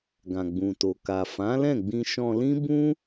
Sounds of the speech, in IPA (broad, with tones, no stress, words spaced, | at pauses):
ɡã˨ɡ͡bũ˨to˨ ka˨ fã˨˦lɛ̃˦˨ɡ͡bĩ˧ ʃɔ̃˧lĩ˦ bũ˦